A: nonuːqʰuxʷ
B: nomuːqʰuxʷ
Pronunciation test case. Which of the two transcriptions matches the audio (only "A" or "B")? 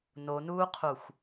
A